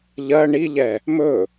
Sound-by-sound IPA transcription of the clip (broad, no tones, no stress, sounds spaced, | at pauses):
ʎ ɜ ɳ i ʎ ɛ | m ɵ